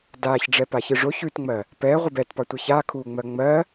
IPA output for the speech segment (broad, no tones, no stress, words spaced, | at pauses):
daːçɖ͡ʐɛ paçɨʐo çʉtŋ͡mɜ | pɛː ʁʷɨbɛtpɑ tʷɨçaːkʰuːŋ͡mɜ ŋ͡mɜ